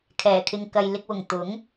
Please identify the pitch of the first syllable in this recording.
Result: low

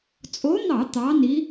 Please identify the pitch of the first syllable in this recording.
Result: rising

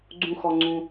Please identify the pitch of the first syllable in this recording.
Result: high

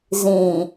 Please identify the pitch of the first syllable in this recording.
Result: low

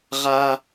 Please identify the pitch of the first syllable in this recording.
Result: high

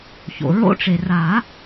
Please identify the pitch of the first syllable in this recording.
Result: low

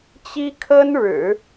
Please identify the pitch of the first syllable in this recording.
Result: high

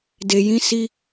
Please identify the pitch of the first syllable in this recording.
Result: low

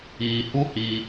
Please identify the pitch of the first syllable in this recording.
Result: low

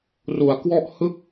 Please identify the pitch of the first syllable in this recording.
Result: low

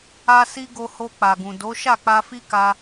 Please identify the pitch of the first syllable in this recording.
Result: high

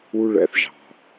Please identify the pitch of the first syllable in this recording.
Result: high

